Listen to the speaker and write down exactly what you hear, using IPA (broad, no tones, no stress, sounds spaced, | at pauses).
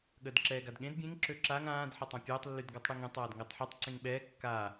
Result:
ɠ əː d ǁ ɛː ɡ a d ɠ ẽ d bʲ ẽ ŋ ǁ ø ǁ a ŋ ãː d ħ e tˤ ã pʲ ɛː tˤ lː y d ɡ ɔ tˤ ɽ e ŋ ẽ tˤ aː d ŋ əː tˤ ħ ɛ tˤ ǀ ẽ ŋ ɓ ɛː kː a